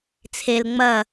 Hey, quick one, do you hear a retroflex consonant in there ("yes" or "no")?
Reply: no